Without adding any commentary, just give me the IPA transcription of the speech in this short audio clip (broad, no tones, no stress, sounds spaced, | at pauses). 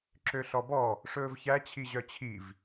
ǁ ø ɬ ɔ b ɔ | ʂ ɵː v ç æ t͡ɕʰ i ʑ œ t͡ɕʰ i v